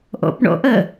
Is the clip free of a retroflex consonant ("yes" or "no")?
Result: no